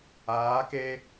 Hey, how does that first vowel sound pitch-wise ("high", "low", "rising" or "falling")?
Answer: rising